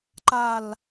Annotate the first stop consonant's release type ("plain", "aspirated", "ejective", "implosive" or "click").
click